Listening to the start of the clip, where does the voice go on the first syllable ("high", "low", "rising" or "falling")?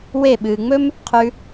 falling